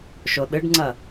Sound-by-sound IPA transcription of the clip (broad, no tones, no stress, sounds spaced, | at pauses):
ʃ o ɗ ɨ ɖ ŋ͡ǀ ɐ